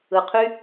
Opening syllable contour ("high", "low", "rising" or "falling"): low